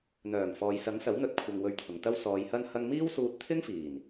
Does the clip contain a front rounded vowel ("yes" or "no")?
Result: yes